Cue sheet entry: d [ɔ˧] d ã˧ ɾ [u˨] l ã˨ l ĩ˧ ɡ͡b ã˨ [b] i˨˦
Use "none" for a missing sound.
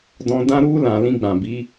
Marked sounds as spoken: ɔ̃˧, u˧, b

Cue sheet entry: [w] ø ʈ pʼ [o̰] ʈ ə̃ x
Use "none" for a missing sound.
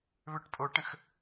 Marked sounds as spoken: β, o

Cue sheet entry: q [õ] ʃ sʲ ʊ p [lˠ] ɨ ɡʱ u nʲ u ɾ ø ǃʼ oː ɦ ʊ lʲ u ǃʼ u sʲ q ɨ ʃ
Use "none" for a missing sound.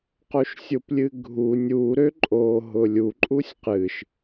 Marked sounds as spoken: o, lʲ

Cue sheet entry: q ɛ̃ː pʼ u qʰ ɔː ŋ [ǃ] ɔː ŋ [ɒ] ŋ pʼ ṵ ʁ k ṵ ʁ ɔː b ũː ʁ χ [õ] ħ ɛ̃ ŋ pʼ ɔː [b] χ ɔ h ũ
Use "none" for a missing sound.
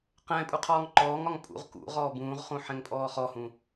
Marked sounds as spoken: ǃ, ɒ, ũ, none

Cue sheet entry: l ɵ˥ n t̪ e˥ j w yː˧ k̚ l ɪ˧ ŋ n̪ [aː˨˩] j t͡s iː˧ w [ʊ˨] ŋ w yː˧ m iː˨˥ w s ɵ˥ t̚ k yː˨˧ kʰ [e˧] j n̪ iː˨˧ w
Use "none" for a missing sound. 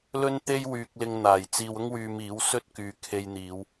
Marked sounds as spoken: aː˨˩, ʊ˥, e˧

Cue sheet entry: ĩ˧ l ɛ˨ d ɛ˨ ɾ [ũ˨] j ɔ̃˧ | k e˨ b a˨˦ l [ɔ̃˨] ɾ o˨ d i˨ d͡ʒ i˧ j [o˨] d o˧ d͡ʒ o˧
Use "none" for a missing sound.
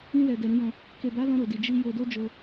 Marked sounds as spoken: ũ˨˦, ɔ̃˧, o˨

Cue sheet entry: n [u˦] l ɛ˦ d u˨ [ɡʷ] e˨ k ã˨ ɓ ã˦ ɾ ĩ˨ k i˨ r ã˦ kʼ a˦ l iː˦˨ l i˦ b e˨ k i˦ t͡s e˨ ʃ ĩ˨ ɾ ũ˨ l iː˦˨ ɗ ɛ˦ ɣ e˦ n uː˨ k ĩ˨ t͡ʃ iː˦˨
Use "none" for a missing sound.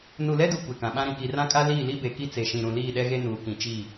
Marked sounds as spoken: u˨, kʷ

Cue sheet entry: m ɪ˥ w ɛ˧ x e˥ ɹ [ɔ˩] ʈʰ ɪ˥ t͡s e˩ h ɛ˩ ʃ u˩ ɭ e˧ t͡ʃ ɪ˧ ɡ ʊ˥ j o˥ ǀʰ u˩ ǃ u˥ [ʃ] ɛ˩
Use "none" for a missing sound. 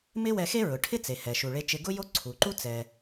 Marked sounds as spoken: ʊ˩, t͡s

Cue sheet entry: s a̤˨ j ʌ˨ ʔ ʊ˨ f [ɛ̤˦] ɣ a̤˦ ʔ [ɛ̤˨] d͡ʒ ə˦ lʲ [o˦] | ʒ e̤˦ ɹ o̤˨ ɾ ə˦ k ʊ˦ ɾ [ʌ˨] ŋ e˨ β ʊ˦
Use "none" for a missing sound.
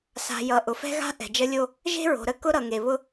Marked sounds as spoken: ɛ̤˦, ɛ̤˨, o˦, ʌ˨

